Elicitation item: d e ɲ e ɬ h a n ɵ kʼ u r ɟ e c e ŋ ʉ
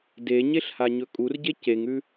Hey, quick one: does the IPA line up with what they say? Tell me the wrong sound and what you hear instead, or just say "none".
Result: n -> ɲ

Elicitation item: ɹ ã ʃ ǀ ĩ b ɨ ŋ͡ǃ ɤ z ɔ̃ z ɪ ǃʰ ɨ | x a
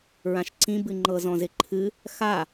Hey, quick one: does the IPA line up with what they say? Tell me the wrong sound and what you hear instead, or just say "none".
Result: none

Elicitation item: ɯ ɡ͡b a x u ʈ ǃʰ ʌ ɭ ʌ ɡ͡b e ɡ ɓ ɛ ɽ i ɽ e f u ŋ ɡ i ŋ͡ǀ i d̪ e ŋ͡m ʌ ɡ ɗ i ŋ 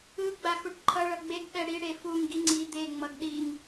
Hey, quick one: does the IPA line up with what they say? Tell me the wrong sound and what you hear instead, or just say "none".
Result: none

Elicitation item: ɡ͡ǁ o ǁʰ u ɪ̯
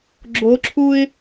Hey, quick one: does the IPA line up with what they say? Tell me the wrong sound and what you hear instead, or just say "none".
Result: none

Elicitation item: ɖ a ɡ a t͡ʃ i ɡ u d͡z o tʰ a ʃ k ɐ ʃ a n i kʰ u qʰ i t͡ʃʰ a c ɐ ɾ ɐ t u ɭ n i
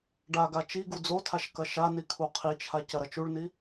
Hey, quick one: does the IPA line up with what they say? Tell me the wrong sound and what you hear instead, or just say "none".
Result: t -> t͡ʃ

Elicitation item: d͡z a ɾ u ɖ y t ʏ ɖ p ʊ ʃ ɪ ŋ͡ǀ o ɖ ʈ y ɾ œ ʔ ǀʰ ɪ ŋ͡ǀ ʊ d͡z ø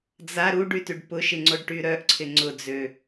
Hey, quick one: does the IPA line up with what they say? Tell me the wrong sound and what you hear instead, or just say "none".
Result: ʏ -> y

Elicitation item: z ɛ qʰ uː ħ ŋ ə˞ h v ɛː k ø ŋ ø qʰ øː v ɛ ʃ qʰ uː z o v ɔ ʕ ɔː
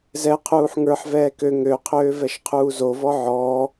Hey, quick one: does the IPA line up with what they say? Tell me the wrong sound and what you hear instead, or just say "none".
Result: h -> ħ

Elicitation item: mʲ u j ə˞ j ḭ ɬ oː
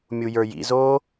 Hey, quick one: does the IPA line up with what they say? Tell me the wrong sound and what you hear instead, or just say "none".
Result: ɬ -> z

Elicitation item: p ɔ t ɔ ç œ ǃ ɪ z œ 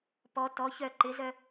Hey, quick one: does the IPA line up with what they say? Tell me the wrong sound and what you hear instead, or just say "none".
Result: none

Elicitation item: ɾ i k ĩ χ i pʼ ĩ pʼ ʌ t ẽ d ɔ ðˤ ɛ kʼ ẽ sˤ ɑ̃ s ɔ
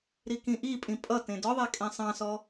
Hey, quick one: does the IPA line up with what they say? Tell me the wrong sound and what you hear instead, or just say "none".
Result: χ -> ʔ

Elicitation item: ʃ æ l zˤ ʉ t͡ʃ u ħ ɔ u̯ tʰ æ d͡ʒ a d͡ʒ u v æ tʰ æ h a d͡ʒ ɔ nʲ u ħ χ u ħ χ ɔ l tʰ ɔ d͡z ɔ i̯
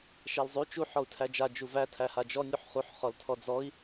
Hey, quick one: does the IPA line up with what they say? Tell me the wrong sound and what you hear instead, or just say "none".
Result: none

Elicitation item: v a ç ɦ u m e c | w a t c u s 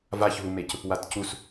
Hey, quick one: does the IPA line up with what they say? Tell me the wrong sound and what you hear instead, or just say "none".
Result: none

